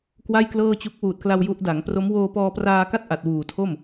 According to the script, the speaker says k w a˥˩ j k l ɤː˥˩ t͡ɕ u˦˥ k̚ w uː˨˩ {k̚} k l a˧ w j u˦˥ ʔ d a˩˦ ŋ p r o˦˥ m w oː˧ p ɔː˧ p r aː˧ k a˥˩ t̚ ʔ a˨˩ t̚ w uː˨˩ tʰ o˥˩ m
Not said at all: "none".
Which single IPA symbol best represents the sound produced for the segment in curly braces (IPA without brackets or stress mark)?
t̚